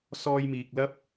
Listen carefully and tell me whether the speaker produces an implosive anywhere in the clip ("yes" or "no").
no